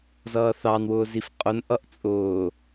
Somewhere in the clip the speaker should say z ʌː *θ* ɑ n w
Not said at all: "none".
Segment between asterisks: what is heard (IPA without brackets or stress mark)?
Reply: θ